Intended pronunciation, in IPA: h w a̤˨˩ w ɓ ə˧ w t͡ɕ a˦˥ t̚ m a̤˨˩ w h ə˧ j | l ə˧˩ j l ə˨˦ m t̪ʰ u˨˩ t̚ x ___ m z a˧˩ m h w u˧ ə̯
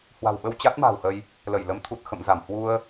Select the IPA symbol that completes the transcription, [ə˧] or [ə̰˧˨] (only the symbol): ə̰˧˨